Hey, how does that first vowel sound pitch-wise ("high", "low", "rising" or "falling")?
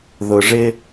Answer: low